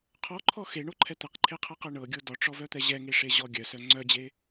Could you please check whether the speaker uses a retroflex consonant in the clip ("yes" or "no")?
yes